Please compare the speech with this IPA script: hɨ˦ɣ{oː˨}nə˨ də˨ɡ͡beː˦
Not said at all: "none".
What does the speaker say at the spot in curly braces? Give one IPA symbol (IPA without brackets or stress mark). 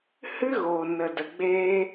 oː˨